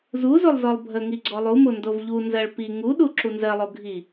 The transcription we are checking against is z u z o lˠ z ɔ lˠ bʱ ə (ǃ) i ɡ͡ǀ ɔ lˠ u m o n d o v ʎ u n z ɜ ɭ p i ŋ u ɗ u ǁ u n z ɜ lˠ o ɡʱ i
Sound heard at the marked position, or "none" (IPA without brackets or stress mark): ŋ